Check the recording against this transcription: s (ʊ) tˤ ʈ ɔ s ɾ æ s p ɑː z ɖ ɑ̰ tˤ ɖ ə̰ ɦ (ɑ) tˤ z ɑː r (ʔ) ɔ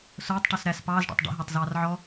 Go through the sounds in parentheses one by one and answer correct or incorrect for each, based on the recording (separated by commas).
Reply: incorrect, correct, incorrect